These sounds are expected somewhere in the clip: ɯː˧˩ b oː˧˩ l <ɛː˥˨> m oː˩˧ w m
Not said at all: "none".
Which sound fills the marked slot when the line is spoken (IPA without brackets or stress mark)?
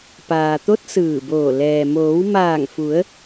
ɛː˩